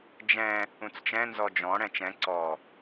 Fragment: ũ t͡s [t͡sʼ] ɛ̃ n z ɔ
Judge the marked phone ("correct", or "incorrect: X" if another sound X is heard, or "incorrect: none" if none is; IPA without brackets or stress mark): incorrect: t͡ʃ